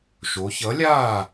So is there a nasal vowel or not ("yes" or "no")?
no